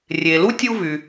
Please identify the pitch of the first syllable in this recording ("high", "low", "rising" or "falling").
low